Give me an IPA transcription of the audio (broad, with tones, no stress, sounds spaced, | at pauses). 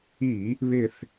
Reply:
i˧˩˧ | β ɪ˦˨ θ